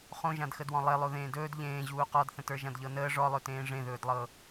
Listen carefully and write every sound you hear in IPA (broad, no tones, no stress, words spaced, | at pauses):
χõʒãdxədwɔ̃ lˠelˠo ðẽːdɵːd ʎẽː ʑuːqɔdθə̃tə˞ ʒãdʎɤnəː ʐɔlˠɵtẽː ʐẽðɵːdlˠɤ